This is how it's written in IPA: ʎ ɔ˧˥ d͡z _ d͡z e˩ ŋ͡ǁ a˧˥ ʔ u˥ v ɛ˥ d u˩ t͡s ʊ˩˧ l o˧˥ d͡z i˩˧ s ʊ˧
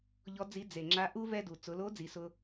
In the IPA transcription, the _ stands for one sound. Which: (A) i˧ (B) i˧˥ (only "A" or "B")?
B